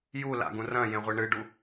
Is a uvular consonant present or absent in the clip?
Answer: present